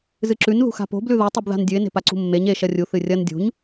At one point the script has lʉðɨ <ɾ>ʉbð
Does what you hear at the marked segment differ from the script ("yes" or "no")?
yes